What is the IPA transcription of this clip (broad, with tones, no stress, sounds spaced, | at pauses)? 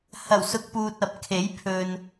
h ɐ˨˩ w s ʊ˨˥ k̚ p uː˨ t̚ ɐ˨ p̚ kʰ e˨˥ j pʰ ɵ˨ n